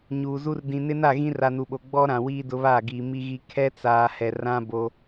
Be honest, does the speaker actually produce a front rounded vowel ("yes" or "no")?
no